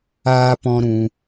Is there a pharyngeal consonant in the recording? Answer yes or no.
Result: no